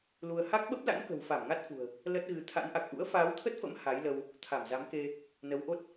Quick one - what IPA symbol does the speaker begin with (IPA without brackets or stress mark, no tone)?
l